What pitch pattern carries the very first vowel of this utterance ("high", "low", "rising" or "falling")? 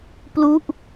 falling